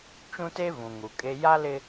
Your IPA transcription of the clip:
t͡ʃũ˦te˦vũ˨ ŋu˨kʼe˦ ja˦lɪ˦

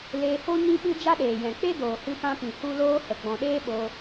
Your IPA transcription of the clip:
leː˧ho˦ ɲĩ˦ɓɨ˦ d͡ʒa˦ɗeː˨ jɛ̃˨k͡pe˦ doː˨hɨ˧pã˧pĩ˨ hu˦loː˦hə˨ ɡ͡bɔ̃˨ɗeː˦ ɓoː˧

